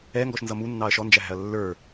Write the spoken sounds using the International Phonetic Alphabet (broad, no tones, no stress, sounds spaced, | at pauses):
ɛ ŋ ɡ ɔ ʃ n z ʌ m u nː ɑ ɐ̯ ʃ ɔ n d͡ʒ æ ɦ æ̤ ɐ̯ lː ə˞